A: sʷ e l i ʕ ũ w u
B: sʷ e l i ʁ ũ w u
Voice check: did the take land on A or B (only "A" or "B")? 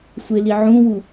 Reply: A